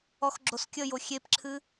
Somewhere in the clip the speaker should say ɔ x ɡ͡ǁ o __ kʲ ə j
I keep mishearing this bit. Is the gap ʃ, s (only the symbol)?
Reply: s